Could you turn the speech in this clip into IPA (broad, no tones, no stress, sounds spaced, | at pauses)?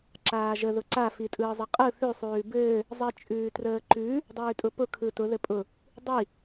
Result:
ǁ aː ʒ ə ð ʊ ǀ a f i tʼ ɯː zˤ ɘ qʼ ɯ θ ʉ sˤ ʉː b ɘː | zˤ i t͡ʃʼ ʉː t r əː ǃ ʉ | dˤ ʉː tʼ ʊ p ʊ kʰ ɯ t ʊ ð ɘ pʼ ʊ | dˤ i